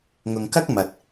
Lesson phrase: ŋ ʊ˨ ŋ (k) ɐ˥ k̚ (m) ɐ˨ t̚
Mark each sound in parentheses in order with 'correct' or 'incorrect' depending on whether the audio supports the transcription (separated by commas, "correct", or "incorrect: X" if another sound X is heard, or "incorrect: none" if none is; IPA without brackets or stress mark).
correct, correct